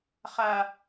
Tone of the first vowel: low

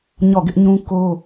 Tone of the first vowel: falling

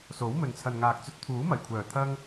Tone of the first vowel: rising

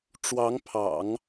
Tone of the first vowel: rising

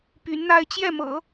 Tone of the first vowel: rising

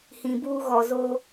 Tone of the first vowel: low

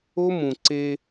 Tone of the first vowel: high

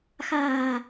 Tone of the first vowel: low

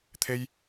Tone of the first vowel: high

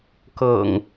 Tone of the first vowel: low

